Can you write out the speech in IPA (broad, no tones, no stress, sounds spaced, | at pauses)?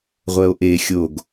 ʁʷ ɛ o̯ ʔ e xʲ o ɡ